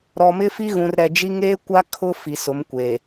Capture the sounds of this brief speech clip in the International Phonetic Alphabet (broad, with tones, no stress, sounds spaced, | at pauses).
ɾ ɔ˨ m ɪ˦ f i˦ ɣ ũ˨ r ɾ ɛ˨ d͡ʒ i˦ ŋ eː˦ kʷ a˦ kʰ ʊ˦ f i˨ s ʊ˨˦ m kʷ e˨